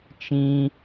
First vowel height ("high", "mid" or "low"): high